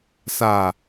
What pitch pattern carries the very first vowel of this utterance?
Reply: low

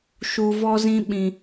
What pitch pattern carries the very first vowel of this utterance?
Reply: low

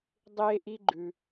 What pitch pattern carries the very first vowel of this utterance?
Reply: high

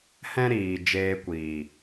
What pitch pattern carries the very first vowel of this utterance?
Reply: high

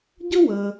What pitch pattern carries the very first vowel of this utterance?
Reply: high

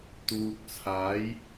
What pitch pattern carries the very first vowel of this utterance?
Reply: low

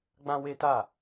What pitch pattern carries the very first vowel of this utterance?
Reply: high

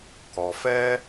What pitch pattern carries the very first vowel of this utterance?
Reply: low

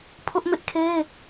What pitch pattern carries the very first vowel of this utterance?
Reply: high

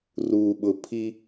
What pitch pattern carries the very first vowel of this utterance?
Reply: low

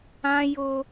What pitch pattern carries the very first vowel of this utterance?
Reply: high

